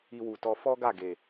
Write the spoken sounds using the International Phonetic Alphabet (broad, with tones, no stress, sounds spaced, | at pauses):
i˧ w u˨ t ɔ˧ f ɔ˦ ɡ a˦˨ ɡ e˨